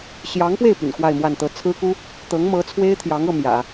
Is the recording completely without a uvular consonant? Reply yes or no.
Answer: yes